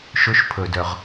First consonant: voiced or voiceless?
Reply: voiceless